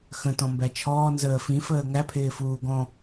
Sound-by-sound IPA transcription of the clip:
xə̃ tɔ̃mbæt͡ʃʰɔː nzəːfĩ fəːŋæ pʰɪːfuːɡɔ̃

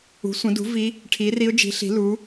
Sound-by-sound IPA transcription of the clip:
ṳ˩˥sʷə̃˩˥dṳ˩˥ vi˧˥ | ʈʰi˩˥ri˧˥ʊ̯d͡ʒi̤˩˥ɬi̤˩˥ lu˩˥

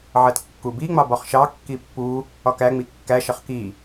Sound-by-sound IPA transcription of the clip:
ʕɜtkːubiŋ͡mɑ bɒχʃɑkːi pːu | ɒkæŋ͡mi kːæʃʌχ ki

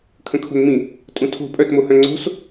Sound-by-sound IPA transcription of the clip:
kʰə̃kʰo̤nmĩ | tʼũtʰo̤ pʼœtmohœ̃ ŋ͡ǀo̤s

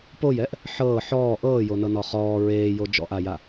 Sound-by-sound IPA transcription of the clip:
pojɛʔ | ħɤː ħɔː ʔɤːjonɤnɔ χɔː ɹeːjo d͡ʒɔ̰ʔaja

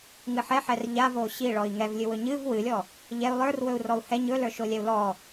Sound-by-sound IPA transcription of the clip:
ŋɨħɛħɛr ʎavo ɕi ɭɔi̯ŋɛvlʲɨwɵ ɲɨv wɨlʲɔ | ʎɛu̯ lˠə˞r wɵu̯rɔu̯hɛ ɲɵlə˞ʃolʲɛu̯ lɔ

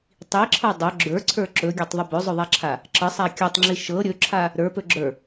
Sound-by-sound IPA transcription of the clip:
tˤiǁʰɤ dˤɵ ɡ͡ǁə˞ǀʰə˞ ǁɵɡʲatˤðˤə bɵzˤɵðˤaǁʰa | ǁəsˤa kʲɵtˤŋ͡ǁi ʃɤ ɾʲɵǁʰa | ɾə˞pɵ ɡ͡ǁə˞

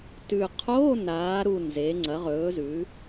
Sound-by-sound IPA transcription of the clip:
tʉ˨˩ qʰoː˧˥˧naː˩˧ɾu˨˩ nze˩˧ ŋ͡ǀɐ˩˧ʁɵː˩˧zʉ˩˧

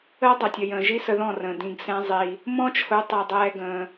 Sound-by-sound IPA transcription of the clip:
əː˦dˤʌ˨tʲʌ˨jə̃ː˨ ʒi˦sə˧ðɔ̃˦˨rə̃ː˨ dĩ˧ɡsɛ̃˦zˤi˧ | mɔ̃˦t͡ʃʰʊ˨˦ tˤɛ˧dˤɛː˦ɡə̃ː˧

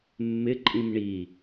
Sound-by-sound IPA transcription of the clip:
mːɪǃʼĩm ɳi

